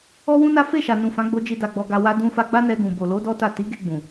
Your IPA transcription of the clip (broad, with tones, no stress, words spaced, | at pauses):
ɔ˦wũ˦na˦ fe˦˨ʃa˨nũ˨ fã˨˦ɡ͡bo˧d͡ʒi˧ da˧ɡ͡bɔ˧ɡa˧ wa˧ dũ˧fa˧ ɡ͡ba˦nɛ˧ɡũ˨ bo˨lo˨˦ dɔ˦ta˦˨ ti˨˦ɡe˧ ɡ͡bũ˨